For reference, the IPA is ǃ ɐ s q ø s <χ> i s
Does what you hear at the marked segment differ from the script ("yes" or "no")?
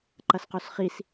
no